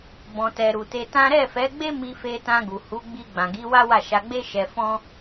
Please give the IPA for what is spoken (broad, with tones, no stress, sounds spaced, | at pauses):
b ɔ̃˨ t ɛ˨ ɾ u˨ t e˧ t ã˦ ɾ ɛ˦˨ f ɛ˨˦ ɡ͡b e˦ m i˧ f e˧ t ã˧ ɡ u˨ h u˨˦ ɡ͡b i˧ ɡ͡b ã˨ ɡ i˨˦ w a˦ w a˦˨ ʃ a˧ ɡ͡b e˦ ʃ ɛ˧ f ɔ̃˦